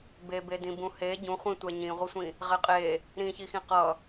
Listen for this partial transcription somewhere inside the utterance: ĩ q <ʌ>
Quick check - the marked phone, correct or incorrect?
correct